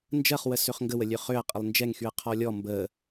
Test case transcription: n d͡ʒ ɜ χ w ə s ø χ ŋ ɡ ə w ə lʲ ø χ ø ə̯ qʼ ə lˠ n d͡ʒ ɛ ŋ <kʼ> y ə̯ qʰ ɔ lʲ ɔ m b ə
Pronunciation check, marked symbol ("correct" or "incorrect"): incorrect